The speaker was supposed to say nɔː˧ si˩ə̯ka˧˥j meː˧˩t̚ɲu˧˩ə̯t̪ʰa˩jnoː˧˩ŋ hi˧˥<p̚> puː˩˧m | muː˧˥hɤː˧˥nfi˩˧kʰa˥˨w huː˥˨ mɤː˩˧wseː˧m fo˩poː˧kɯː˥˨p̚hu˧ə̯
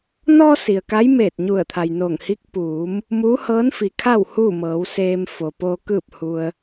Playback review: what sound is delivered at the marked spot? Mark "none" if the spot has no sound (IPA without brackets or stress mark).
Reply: k̚